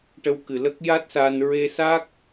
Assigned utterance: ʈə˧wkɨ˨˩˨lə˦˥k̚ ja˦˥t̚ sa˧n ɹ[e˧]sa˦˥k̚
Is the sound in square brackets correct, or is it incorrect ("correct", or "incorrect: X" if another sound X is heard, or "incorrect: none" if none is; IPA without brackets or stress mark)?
correct